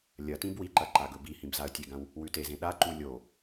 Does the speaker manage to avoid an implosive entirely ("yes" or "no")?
no